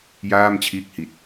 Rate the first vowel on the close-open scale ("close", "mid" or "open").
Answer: open